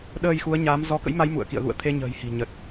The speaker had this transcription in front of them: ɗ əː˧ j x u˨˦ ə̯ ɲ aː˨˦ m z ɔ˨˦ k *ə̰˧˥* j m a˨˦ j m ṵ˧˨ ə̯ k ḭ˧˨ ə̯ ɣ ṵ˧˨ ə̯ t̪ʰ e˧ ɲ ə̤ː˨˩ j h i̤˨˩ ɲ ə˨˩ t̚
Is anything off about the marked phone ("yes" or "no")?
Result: no